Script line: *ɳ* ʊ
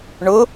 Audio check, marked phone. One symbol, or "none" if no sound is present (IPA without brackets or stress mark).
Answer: ɳ